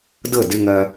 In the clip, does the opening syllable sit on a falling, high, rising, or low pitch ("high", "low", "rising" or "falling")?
falling